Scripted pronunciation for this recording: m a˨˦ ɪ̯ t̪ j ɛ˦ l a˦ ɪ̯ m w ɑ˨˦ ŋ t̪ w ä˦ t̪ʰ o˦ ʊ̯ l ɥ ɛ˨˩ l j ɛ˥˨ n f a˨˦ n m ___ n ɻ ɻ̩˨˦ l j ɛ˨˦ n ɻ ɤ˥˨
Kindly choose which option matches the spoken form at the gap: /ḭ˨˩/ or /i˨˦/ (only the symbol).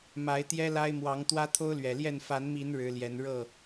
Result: i˨˦